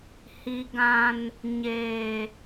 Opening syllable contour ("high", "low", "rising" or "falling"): low